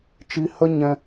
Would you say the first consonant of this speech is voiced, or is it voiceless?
voiceless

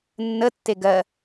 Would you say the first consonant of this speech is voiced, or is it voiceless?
voiced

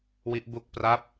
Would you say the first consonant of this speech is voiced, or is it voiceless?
voiced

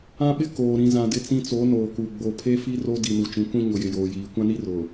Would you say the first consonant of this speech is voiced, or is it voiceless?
voiced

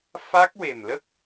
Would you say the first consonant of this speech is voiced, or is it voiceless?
voiceless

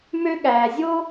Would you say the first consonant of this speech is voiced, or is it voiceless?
voiced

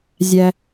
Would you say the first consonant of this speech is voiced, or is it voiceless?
voiced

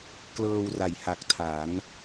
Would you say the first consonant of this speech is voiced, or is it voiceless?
voiceless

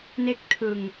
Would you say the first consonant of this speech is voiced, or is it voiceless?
voiced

